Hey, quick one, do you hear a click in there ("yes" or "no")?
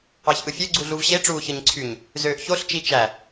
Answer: yes